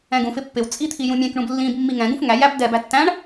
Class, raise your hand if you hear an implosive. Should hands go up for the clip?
no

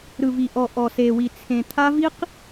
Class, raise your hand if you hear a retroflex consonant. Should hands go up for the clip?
no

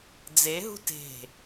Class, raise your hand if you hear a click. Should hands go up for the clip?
no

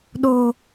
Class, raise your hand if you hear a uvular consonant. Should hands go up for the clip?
no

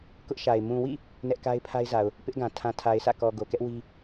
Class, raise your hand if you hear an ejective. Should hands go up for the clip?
no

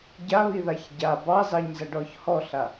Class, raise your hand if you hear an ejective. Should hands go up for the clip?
no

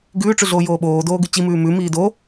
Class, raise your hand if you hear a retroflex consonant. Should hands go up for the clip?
yes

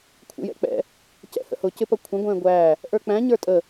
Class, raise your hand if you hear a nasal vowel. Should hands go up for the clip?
yes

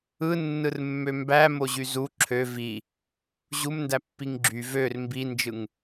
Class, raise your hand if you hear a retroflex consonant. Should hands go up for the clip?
no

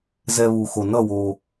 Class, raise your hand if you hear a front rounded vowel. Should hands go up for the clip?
no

